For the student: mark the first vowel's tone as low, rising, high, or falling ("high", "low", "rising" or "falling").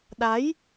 rising